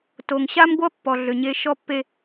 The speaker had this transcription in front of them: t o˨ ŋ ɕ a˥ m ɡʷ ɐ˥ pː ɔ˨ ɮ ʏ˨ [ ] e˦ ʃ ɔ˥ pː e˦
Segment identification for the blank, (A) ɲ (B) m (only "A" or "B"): A